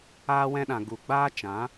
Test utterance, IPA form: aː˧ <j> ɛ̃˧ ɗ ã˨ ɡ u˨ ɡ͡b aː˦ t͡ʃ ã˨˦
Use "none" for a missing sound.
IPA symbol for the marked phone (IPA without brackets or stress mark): w